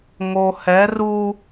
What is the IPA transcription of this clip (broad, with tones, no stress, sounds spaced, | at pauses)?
ŋ o˨ h ɛ˨˦ r u˦